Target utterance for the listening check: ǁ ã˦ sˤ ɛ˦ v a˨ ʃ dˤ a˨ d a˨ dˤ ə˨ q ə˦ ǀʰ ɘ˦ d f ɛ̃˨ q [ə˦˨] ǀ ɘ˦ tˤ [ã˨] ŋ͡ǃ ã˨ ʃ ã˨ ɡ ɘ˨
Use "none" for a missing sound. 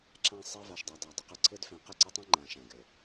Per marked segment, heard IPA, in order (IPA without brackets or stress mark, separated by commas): ə˦˨, ã˦